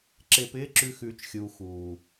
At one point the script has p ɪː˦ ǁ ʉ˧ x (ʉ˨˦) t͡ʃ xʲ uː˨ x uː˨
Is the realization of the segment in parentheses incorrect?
no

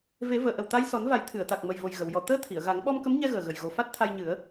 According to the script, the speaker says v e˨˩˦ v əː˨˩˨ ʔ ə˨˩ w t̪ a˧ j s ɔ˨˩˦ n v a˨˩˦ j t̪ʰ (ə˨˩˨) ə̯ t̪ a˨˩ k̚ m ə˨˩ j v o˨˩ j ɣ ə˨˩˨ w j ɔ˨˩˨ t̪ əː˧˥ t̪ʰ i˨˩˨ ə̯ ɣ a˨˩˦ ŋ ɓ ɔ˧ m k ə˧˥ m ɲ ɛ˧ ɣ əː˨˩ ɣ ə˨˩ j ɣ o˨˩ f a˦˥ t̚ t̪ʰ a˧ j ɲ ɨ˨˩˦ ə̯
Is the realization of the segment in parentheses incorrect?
yes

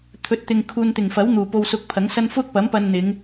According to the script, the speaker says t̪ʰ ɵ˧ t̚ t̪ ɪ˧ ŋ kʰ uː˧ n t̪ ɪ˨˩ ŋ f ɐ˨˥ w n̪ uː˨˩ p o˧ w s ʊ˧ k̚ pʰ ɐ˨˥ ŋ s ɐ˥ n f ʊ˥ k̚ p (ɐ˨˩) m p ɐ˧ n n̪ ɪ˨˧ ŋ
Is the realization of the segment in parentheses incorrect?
yes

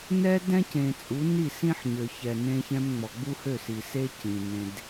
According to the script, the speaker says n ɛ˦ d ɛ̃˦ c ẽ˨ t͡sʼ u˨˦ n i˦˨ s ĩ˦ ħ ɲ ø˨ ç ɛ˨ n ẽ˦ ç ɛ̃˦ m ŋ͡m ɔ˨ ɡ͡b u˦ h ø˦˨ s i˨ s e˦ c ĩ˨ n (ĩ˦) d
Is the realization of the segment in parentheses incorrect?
yes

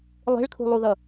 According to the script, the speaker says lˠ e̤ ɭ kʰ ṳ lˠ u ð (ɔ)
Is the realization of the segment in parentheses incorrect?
yes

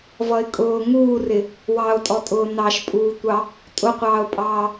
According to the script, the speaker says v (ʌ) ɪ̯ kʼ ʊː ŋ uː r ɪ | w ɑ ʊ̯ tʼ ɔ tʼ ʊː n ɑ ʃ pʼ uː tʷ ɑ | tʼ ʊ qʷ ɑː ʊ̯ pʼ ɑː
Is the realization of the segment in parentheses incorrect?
no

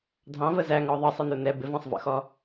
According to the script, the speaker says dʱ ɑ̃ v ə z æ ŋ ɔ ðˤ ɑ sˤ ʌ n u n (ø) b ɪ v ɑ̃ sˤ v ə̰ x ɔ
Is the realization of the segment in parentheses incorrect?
yes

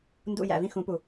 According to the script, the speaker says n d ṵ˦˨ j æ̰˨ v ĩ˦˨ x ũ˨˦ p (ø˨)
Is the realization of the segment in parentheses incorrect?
yes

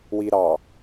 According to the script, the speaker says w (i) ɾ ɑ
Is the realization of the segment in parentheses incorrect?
no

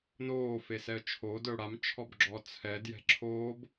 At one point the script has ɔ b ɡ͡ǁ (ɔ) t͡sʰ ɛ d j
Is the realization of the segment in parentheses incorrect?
no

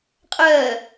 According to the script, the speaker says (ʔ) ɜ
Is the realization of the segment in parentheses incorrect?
yes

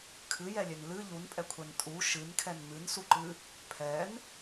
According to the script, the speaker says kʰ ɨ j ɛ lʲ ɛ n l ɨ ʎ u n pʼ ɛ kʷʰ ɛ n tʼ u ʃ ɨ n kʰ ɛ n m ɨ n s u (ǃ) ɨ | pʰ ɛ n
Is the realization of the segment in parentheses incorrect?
no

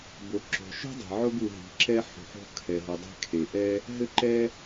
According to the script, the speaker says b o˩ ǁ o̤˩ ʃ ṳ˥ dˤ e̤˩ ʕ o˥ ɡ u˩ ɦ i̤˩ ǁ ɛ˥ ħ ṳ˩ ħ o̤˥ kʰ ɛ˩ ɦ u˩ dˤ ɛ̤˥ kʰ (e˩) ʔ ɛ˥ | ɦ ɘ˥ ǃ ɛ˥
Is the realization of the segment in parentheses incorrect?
no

